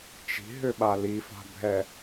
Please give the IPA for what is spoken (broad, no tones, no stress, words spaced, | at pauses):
t͡ʃi̤ɦʏɓa lifa̤bʱɛ